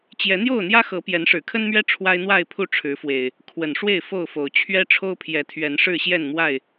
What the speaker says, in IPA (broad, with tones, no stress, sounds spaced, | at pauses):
t͡ɕ j ɛ˨˦ n̪ j o˥˨ ʊ̯ n̪ j ä˦ x ɤ˨˦ p j ɛ˨˦ n ʂ ɻ̩˨˩ kʰ ə˦ n m ɥ ɛ˦ ʈ͡ʂʰ w a˦ ɪ̯ n̪ w a˥˨ ɪ̯ pʰ u˥˨ ʈ͡ʂʰ ɻ̩˨˦ f w e˨˩ ɪ̯ | kʰ w ə˨˩ n ʂ w e˥˨ ɪ̯ f o˥˨ ʊ̯ f o˨˩ ʊ̯ t͡ɕʰ ɥ ɛ˦ ʈ͡ʂʰ o˦ ʊ̯ pʰ j ɛ˨˦ t̪ʰ ɥ ɛ˨˦ n ʂ ɻ̩˥˨ ɕ j ɛ˥˨ n m w a˥˨ ɪ̯